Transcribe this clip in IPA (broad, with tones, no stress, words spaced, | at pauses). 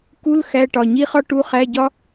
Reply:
ku˧˥˧l xæ˧˥˧ʈɒ˩˧˩ ɲi˥χɒ˥ ʈu˧˥˧χæ˧˥˧ɟɒ˥